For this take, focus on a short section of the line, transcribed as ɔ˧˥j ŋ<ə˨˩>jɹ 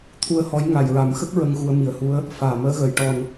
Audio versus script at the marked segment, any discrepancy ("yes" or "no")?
yes